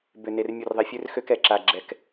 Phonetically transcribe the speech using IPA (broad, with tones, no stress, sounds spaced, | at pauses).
b ʏ˨ n e˨ r mʲ u˨ r ðˤ ɛ˨ fʲ ø˦ r x ø˦ k ɛ˨ ǁ a˨ ɡ͡ǁ ɛ˨ k